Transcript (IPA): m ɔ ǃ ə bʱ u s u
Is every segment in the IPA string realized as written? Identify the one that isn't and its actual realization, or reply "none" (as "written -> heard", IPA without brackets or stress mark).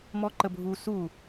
none